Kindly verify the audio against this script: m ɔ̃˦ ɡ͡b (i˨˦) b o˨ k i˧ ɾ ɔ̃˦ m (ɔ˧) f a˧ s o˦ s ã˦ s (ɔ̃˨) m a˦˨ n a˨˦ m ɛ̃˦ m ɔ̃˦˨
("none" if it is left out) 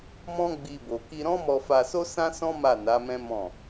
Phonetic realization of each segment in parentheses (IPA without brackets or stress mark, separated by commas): i˧, ɔ˧, ɔ̃˦